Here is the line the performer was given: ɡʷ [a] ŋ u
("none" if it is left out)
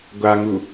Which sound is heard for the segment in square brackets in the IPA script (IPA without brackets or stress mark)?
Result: a